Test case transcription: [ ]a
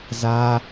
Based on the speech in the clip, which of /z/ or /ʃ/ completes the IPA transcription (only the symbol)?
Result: z